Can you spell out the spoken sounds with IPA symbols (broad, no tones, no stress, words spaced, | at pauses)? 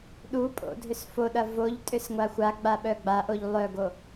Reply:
ɗupʼo̰dʱʏs foɗɐ voʎtʼʏsŋʷa xʷaɡ͡baɓœ ɡ͡baʔoʎ lˠœɡo